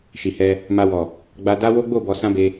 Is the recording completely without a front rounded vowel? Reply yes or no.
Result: yes